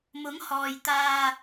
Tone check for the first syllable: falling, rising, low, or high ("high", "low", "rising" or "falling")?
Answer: rising